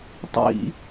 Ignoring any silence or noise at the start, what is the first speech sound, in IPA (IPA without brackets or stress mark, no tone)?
tˤ